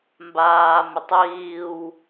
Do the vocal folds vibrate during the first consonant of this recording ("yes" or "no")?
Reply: yes